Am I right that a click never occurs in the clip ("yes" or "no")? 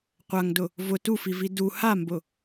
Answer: yes